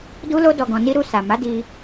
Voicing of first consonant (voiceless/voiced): voiced